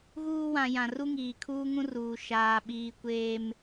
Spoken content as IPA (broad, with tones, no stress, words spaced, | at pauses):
ɣuː˦wã˨ jã˨ ru˦ŋiː˨kʰuː˦ŋũ˦ ruː˨ʃaː˨ɓiː˨ kʷeː˨m